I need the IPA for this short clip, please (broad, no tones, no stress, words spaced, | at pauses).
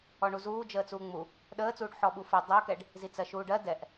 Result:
ɔɳuzuː d͡ʒəːt͡suːŋ͡mu | ɗəːt͡suːɖ ħɔɓufə dˤʌkɛɖ | zit͡sɜʃuːɖɜ dɛʔ